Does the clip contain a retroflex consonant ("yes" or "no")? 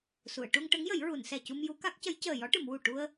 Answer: yes